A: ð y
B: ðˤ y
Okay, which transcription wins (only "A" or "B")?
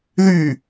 A